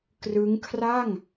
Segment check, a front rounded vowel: absent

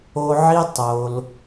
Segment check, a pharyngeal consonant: present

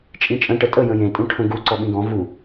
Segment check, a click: present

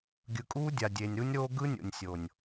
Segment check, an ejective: present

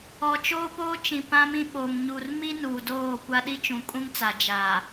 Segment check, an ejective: present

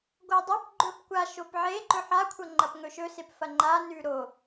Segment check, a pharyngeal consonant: present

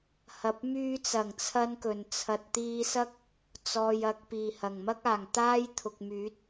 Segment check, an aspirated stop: present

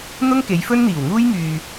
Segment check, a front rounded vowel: present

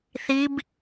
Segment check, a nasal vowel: absent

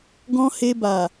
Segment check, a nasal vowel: present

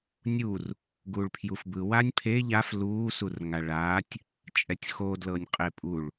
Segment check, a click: absent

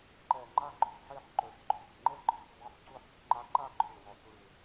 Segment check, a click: present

